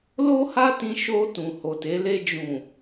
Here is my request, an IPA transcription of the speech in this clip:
l o˦ h a˦ t ĩ˧ ʃ o˧ t ũ˨ h o˨ t e˨˦ l e˧ d͡ʒ ũ˨

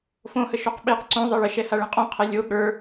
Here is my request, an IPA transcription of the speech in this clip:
f õ h ə ʃ o q ɓ e q ǀ õ ðˤ e ɭ ə ʃ ɛ h a ɭ ɛ̃ qʼ õ qʰ e lʲ o ɠ ə˞

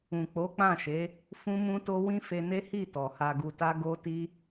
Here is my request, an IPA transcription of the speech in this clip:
ũ˨ k͡p o˨˦ k͡p ã˦˨ ʃ e˨˦ | f ũ˦ m ũ˦ t o˦ w ĩ˦ f e˧ n e˦ h i˦˨ t ɔ˨ h a˧ ɡ u˧ t a˦ ɡ o˦ t i˦

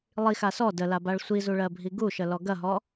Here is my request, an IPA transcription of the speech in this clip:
lˠ i x a s ɔ d ə l a b a ɭ sʷ i z u ɭ ɜ bʱ i ɡ u ʃ ə l ɔ ɡ ɐ ɦ ɔ

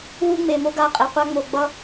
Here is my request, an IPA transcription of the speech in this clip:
w u˦ ŋ͡m e˨ m o˦ ɡ a˦˨ qʼ e˨ qʷ a˦ ŋ͡m o˨ ɡ͡b ʌ˦

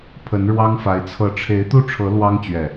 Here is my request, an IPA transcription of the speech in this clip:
pʰ ə˨˦ n ɻ w ɑ˦ ŋ f a˨˦ ɪ̯ t͡sʰ ɤ˨˦ ʈ͡ʂʰ e˨˦ ɪ̯ t̪ u˥˨ ʈ͡ʂʰ ɤ˨˦ l w ɑ˦ ŋ t͡ɕ ɥ ɛ˨˩

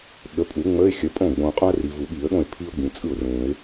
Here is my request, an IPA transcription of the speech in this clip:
ɠ ə˩˥ pʼ u˨˩˦ ŋ͡m ə˧˥˧ ɪ̯ xʲ ə˩˥ pʼ õ˥˩ ɡ͡b õ˨ qʼ õ˥ ə̯ r i˨ v u˨˩˦ ɠ i˨˩˦ ə̯ ɠ õ˥˩ ɪ̯ pʰ i˥ ʊ̯ ɡ͡b ĩ˨ t͡sʼ ɯ˥˩ ʊ̯ r ũ˨˩˦ ɪ̯

